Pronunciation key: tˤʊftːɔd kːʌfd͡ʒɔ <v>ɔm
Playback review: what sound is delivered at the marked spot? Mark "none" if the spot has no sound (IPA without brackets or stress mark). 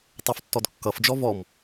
v